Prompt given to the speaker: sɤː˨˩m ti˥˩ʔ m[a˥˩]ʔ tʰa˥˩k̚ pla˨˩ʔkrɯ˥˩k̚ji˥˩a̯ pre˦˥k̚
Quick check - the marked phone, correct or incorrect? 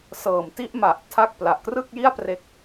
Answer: incorrect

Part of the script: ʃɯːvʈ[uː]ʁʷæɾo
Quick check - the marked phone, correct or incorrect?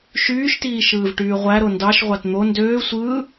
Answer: incorrect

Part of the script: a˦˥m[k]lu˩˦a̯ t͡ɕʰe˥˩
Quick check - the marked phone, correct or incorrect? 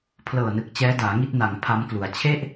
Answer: correct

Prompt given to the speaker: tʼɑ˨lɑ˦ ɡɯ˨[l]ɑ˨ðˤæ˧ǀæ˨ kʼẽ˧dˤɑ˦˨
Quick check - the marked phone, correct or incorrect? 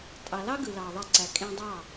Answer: correct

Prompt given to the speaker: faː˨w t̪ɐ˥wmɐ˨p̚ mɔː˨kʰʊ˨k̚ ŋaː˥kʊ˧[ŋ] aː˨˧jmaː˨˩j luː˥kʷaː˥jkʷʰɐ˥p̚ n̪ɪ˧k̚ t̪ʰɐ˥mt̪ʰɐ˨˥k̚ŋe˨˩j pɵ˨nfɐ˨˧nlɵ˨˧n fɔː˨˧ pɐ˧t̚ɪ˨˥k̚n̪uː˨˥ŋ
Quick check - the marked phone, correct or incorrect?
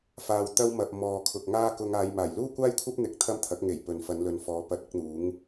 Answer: correct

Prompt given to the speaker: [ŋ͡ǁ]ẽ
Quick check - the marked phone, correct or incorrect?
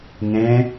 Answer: incorrect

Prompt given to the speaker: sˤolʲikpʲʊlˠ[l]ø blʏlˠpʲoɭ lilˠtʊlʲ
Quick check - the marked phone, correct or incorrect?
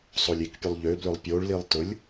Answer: incorrect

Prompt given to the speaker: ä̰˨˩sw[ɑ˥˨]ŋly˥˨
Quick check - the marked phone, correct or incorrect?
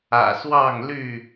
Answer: correct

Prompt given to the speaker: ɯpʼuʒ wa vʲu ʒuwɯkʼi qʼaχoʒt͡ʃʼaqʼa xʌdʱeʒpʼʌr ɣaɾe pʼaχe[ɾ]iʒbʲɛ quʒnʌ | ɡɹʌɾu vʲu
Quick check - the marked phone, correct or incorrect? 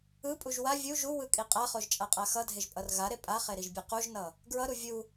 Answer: correct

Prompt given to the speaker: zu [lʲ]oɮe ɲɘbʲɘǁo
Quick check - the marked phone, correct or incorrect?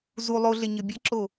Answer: incorrect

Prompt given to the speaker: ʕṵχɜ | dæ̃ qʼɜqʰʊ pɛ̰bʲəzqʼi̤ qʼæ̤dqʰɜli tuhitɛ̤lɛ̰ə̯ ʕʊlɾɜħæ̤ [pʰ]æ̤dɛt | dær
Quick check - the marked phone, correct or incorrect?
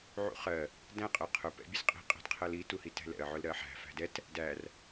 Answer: incorrect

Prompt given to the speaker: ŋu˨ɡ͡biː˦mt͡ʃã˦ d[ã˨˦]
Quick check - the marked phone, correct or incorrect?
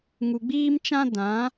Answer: correct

